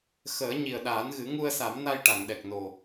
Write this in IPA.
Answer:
x əː˨˩˦ ɲ i˨˩ ə̯ ɗ aː˨˩˦ n ɣ ɨ˨˩˦ ŋ u˧ ə̯ s a˨˩˦ m n a˧ j ʈ a˨˩˨ ŋ ɗ ɛ˨˩ k̚ n o˨˩

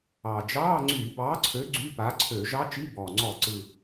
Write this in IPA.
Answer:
ɑ˨˩ d͡ʒ ɑː˧˥˧ ŋ͡ǀ yː˧˩˧ b ɑː˨˥ ǀʰ ø˨˥ ɡ͡ǀ y˧˥˧ p a˨˥ ǀʰ ø˧˩˧ ʒ ɑ˦˥ t͡ʃ i˧˥˧ b ɔː˨˩ ŋ͡ǀ ɔ˧˩˧ ǀ ɯ˨˩

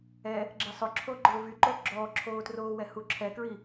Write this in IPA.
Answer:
ɛ | ɡ͡ǁ e sˤ ʊ ǁʰ o ɡ͡ǃ ʊː v y ǃ o ɡ͡ǁ ɔː ǁʰ oː t r oː w ɛ h u ǁʰ ɛ k ɹ i

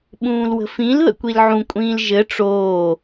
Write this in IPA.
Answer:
ɓ ũː l w ə̤ f ĩ l ð ə̰ kʷ i l ʕ ũ kʷʼ ĩː l ʒ ɘ ʈ͡ʂ oː

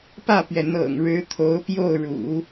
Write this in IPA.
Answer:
p ä˥˩ p ɥ ɛ˩ n̪ ɤ̰˨˩ ŋ ɻ ɻ̩˧˥ t̪ʰ o˧˥ ʊ̯ p j o˥˩ ʊ̯ ɻ ṵ˨˩˦

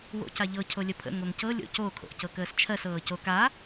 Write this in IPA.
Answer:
w o̰ c a ʎ ɤ cʰ o lʲ ə pʰ ə̰ ŋ o ŋ c ɤ lʲ o̰ c o kʰ o̰ ʔ c ɤ k əː s t͡ʃʰ ɜ s ɤː c o k a

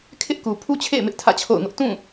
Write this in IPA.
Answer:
kʰ ɪ˦ ʔ k u˨ pʰ u˦ t͡ɕʰ ḛ˦˨ ɪ̯ m ɪ˦ ʔ tʰ ä̰˦˨ t͡ɕʰ o̰˦˨ ʊ̯ ŋ ʊ˦ ʔ t ũ˦˨

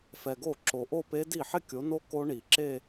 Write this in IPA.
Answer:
f ɛ˨ ɡ o˥˩ ǁ o˨ ʔ o˥˧ p e˦˥ d i˥˩ ħ ɪ˥˧ kʲ o˨˦ n o˦˥ k o˦˥ ɳ i˨˩˦ ǁ e˥˧

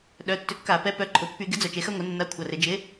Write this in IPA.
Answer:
ɗ œ˩˧˩ tː ʏ˨˥ kː a˧˩˧ p ɛ˨˥ p œ˩˧˩ ǃʰ ʊ˩˧ pː y˧˩˧ ɡ ɪ˨˥ d͡z œ˧˩˧ t͡ʃ e˩˧ x ɐ˦ ŋʷ ɛ˩˧ nː a˨˥ kʷʰ ɐ˩˧˩ r ɪ˧˩˧ d͡ʒ ɪ˨˥

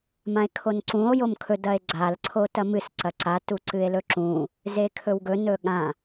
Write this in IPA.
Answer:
m ã e̯ kʰ o n ǀ ũ o̯ j o m kʰ ɵ d ɐ e̯ ɡ͡ǀ a l ǀʰ o t ɐ m ɨ s ǀ ɐ ǀ a t u ǀ ɨ e̯ l ɵ ǁ ũ | z e kʰ ɵ w ɡ ɵ n ɵ ɠ ã

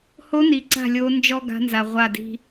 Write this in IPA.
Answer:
h o˧˥ n i˨ ǀ a̤˥˩ lʲ o˧˥ n d͡ʒ ɔ˥ ɡ a̤˧˥ n z a˨ ʁʷ a˥˩ d i̤˥

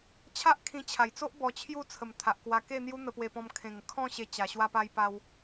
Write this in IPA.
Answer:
t͡ɕʰ a˦ ʔ kʰ ĩ˧ t͡ɕʰ a˨˩ j t͡s o˦ ʔ b ɔ˧ t͡ɕʰ j u˥˧ t͡sʰ ə˨˩ m t̪ʰ a˨ ʔ k w a˧ k e˥˧ n̪ j u˦ n̪ ə˧ p w e˧ p ɔ̃˧ m kʰ ẽ˨˩ ŋ kʰ ɔ̃˥˧ ɕ e˧ t͡ɕ a˨˩ ɕ w a˧ p a˧ j p a˧ w

